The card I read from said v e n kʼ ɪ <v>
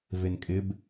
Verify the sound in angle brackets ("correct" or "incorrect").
incorrect